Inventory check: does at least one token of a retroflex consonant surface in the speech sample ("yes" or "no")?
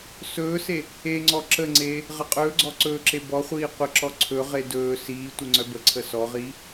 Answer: no